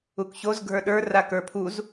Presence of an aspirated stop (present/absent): present